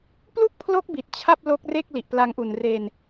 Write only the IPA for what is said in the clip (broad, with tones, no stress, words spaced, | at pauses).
plu˥˩k̚pʰlo˦˥k̚bi˨˩t̚ t͡ɕʰa˥˩p̚lo˦˥k̚re˥˩k̚ li˨˩ʔpla˧ŋʔu˨˩n re˧n